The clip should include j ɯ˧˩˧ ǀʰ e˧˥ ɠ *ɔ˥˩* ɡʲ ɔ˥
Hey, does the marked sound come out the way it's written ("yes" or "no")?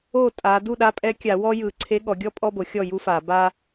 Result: no